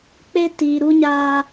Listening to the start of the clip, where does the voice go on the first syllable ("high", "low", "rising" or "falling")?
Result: high